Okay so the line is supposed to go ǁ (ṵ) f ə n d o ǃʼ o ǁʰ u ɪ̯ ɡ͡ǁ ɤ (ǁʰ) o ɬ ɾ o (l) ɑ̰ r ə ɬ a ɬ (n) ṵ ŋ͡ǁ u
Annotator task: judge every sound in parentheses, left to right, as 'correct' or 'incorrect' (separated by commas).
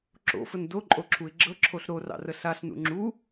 incorrect, correct, incorrect, correct